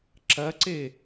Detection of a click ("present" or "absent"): present